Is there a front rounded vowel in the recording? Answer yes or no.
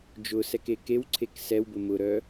yes